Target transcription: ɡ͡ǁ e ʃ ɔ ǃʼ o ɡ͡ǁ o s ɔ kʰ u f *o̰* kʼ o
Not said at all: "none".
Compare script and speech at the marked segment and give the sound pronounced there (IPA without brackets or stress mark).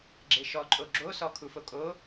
o